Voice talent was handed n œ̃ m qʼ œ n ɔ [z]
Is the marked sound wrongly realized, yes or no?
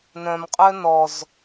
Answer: no